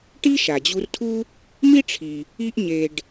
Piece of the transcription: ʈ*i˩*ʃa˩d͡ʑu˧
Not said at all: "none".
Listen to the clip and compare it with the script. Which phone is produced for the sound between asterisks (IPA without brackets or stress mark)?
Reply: i˥